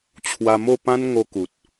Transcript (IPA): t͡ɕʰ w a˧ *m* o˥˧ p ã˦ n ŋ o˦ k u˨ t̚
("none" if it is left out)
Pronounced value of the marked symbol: m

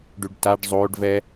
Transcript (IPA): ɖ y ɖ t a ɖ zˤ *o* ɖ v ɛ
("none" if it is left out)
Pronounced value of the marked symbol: o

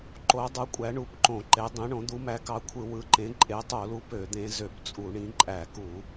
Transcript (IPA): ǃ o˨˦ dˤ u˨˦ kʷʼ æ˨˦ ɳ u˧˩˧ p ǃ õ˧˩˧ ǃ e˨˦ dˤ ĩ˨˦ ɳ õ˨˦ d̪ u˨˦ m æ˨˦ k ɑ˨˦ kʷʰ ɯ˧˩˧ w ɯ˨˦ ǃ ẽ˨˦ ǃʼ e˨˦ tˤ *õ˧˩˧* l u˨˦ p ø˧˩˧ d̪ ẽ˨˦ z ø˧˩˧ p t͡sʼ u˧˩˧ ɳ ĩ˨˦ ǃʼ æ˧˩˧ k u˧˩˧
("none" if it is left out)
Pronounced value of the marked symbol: o˧˩˧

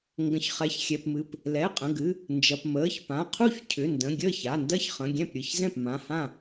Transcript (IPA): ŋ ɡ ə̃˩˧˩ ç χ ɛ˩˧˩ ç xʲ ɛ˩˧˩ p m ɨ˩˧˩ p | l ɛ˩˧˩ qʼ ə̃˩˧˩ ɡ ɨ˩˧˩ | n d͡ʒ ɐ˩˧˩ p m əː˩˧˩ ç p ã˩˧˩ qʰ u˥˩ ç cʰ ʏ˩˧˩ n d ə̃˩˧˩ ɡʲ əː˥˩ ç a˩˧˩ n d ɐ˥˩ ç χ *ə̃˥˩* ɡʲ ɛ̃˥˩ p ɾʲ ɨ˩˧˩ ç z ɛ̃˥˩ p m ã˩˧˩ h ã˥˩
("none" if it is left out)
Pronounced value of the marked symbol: ə̃˩˧˩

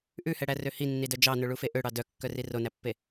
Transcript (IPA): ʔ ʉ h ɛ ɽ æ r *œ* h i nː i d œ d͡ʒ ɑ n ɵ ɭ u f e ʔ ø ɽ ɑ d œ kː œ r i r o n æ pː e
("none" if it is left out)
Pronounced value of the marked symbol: ø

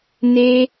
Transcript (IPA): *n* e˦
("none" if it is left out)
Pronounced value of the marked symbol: n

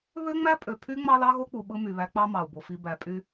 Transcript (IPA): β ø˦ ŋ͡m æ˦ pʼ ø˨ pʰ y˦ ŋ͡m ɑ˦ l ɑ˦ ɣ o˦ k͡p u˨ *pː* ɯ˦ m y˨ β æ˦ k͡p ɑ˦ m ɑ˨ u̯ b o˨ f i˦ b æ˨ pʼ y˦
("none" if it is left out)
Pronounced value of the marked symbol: ɓ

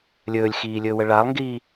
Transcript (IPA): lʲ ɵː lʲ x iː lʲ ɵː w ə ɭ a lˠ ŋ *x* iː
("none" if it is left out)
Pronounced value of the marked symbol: ɡ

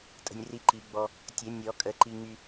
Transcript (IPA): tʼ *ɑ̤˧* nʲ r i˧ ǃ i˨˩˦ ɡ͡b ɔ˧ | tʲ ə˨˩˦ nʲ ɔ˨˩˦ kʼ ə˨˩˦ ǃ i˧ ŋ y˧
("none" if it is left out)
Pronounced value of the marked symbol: ə̤˧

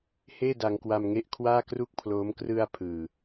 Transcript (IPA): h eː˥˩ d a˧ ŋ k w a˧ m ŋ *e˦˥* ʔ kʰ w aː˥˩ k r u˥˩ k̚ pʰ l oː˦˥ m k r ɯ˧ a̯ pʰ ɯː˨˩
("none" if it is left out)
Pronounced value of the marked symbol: e˦˥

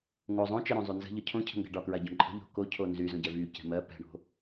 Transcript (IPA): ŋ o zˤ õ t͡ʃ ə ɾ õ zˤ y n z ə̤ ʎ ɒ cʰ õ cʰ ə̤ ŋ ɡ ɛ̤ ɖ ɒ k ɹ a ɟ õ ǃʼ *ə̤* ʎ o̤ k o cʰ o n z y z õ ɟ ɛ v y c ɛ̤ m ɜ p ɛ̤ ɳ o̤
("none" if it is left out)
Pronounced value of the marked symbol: ə̤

